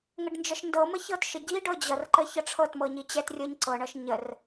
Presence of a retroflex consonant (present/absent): present